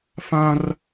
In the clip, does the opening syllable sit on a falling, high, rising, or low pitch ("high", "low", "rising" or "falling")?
high